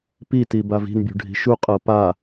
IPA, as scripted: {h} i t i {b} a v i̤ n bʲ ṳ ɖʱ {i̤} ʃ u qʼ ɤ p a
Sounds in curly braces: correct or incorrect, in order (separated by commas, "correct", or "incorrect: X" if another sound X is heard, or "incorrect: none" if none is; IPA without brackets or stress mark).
incorrect: p, correct, correct